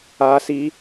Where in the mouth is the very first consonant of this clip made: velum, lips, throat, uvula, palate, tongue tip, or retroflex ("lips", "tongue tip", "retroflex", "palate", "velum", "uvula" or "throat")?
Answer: tongue tip